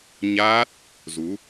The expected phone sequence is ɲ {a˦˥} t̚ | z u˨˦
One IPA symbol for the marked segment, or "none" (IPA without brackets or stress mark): aː˦˥